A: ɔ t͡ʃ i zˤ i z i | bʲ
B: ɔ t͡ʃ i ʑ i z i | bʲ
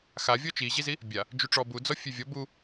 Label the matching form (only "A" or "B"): B